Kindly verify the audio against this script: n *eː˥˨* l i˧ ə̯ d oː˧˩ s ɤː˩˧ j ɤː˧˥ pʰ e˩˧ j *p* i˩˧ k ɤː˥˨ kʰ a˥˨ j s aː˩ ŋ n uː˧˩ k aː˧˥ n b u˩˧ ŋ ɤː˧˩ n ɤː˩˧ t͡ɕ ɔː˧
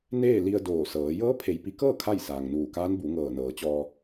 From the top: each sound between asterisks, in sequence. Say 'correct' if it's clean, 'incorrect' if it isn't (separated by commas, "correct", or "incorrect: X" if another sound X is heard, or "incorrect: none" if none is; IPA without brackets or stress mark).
correct, correct